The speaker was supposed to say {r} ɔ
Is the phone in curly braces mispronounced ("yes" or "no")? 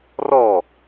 no